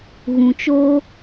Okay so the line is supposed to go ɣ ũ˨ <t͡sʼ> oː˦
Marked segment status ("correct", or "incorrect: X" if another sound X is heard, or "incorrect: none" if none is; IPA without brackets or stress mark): incorrect: t͡ʃ